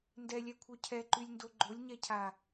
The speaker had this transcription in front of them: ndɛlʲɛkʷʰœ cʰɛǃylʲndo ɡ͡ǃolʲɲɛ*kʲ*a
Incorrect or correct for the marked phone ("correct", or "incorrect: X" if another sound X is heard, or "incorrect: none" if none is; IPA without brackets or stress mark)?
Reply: incorrect: cʰ